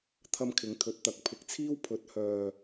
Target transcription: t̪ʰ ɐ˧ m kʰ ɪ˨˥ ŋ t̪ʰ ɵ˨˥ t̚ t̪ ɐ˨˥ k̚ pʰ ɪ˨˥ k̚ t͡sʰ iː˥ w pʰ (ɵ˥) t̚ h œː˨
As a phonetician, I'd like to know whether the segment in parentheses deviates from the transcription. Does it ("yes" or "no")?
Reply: yes